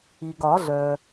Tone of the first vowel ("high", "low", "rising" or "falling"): low